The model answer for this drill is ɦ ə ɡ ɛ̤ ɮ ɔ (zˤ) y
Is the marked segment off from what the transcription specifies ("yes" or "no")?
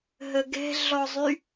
no